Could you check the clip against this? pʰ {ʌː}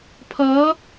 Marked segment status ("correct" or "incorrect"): correct